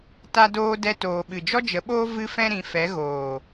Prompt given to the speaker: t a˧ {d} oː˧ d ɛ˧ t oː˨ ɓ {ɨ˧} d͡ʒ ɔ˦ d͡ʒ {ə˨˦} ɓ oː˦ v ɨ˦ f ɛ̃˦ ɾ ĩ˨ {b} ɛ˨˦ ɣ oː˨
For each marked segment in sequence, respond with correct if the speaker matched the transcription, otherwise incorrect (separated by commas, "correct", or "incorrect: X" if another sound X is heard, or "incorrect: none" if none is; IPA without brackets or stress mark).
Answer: correct, incorrect: ɨ˨, correct, incorrect: f